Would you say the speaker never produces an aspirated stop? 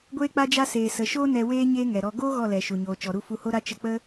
yes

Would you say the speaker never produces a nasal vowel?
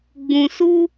no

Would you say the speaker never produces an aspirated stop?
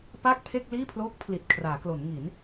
no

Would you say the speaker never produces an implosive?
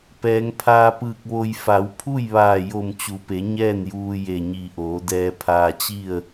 yes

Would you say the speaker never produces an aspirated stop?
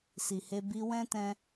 yes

